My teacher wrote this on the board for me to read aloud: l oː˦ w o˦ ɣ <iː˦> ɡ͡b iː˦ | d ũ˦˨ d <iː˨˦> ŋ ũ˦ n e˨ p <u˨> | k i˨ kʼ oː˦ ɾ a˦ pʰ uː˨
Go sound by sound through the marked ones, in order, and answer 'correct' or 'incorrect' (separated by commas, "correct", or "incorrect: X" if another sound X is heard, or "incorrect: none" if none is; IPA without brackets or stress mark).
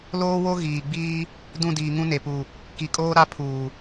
incorrect: iː˨, incorrect: iː˨, correct